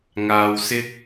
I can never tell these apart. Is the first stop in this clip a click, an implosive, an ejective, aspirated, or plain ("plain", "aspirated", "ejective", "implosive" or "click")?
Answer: plain